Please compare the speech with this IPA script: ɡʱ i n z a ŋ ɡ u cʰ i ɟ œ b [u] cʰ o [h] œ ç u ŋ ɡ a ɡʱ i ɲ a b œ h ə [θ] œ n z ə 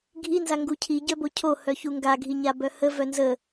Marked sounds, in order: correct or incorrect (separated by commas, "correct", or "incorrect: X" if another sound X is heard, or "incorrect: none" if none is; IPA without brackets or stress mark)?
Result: incorrect: o, correct, incorrect: v